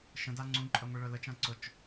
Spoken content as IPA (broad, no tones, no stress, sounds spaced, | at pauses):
ʃ ə̃ d a ŋ͡ǀ ũ ǃʼ œ ŋʷ i ɭ œ l ə t͡ʃ ã ǀ ʊ t͡ʃ